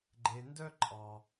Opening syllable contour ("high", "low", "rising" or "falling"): low